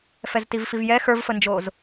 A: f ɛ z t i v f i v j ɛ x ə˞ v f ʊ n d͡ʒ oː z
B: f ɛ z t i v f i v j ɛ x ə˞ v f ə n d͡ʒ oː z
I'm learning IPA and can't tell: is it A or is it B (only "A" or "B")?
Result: B